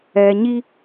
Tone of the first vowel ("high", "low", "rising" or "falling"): low